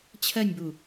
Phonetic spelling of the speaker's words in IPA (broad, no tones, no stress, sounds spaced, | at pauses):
t͡ɕʰ ɜ nʲ b u